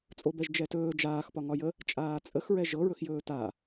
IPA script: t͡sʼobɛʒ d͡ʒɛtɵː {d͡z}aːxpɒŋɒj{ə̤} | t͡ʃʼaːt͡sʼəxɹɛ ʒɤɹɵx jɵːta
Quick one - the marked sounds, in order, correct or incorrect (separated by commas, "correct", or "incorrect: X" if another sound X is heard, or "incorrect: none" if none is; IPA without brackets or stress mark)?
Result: incorrect: d͡ʒ, incorrect: ə